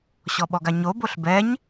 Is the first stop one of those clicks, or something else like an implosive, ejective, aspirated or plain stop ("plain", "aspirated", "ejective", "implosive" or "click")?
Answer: implosive